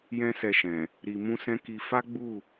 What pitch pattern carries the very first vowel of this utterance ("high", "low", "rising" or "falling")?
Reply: high